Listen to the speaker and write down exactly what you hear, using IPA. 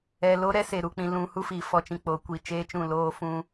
ɛ˨ l o˦ ɾ ɛ˦ s e˨ ɾ u˨ k͡p ĩ˨ l ũ˨ h u˦ f i˨ f ɔ˨ t͡ʃ ĩ˨ k͡p o˨˦ kʷ i˨ t͡ʃ eː˦ t͡ʃ ũ˦˨ l oː˦ f ũ˦

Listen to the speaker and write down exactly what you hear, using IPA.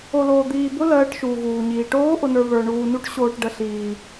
o˧ l oː˧ d̪ iː˧ b ʊ˦˥ l ɜː˦˥ ʈ ʃ uː˧ ɣ uː˧ ɲ iː˧ ʈ oː˦˥ ʔ ʊ˧ n ə˞˧ β ə˞˧ ɳ uː˧ n u˦˥ ʈ ɕ oː˧ ʈ ɖ ə˧ ɬ iː˧

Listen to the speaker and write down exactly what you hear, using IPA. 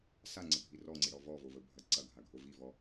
s a ŋ͡ǀ ə bʱ i r ɔ ŋ͡ǀ i ɽ ɔ v ɔ v o v ə bʱ ɐ ǀ ɐ ɡʱ a ɡʱ o v i v ɔ

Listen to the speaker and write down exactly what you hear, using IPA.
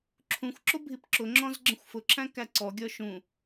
ǁʰ ũ xʷ ǁ ʊ bʱ i p ǁ ʊ ŋ͡ǁ ɔ̃ z ɡ͡ǁ ə̃ xʷ f ʊ ǁʰ æ̃ k æ ǀ ɔ ɡʲ ɔ ʃ ũ

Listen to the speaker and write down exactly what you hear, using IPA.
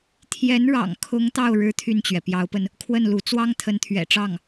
t̪ʰ j ɛ˧˥ n ɻ ɑ̰˨˩ ŋ kʰ ʊ˧˥ ŋ t̪ ɑ˥˩ ʊ̯ ɻ ɻ̩˥ t̪ʰ y˥˩ n t͡ɕ ɥ ɛ˩ p j ɑ˧˥ ʊ̯ p ə˧ n | kʰ w ə˥˩ n l u˧˥ t͡s w ɑ˥ ŋ t̪ʰ ə˧˥ n t̪ʰ ɥ ɛ̰˨˩ ʈ͡ʂ ɑ˥˩ ŋ

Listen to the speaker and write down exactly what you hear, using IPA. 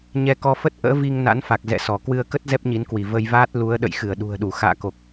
ɲ ɛ˧ k ɔ˧ f ə˦˥ t̚ ʔ ə̰ː˧˥ v i˧ ŋ n a̰˧˥ n f a˨˩ k̚ z ɛ̰˧˨ s ɔ˧˩ k w ɨ˧ ə̯ k ə˦˥ t̚ z ɛ˦˥ p̚ ɲ i˨˦ n k w i˧˩ v ə˧ j v aː˦˥ t̚ l u˨˦ ə̯ ɗ ə̰˧˨ j x ɨ˧˩ ə̯ ɗ ṳ˨˩ ə̯ ɗ u˧˩ x a̰ː˧˨ k o˨˩ k̚

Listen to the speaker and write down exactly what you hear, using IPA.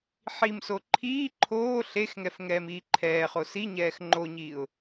ħ i m s o ǃʰ iː ǃʰ oː ɬ e x ŋ ɛ f ŋ ɛː m iː ǃʰ ɛː χ o s i ɲ ɛː x ŋ͡ǃ o ɲ iː ʊ̯

